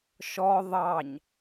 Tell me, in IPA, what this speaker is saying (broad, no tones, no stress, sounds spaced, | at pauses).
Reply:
ʃ ɔ ðˤ ɑ ɲ